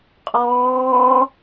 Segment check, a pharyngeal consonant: absent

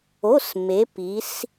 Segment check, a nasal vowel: absent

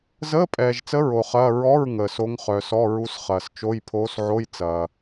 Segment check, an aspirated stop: present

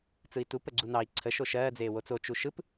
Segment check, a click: present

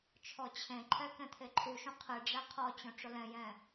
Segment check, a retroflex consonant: present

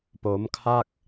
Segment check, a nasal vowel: absent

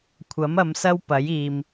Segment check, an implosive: absent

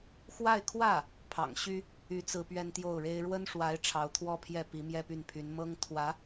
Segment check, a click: absent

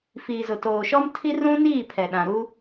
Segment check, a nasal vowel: present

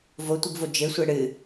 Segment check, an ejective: absent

